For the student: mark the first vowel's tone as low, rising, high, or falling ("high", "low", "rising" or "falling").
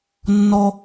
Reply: low